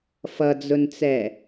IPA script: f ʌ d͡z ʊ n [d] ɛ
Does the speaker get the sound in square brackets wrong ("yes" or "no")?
yes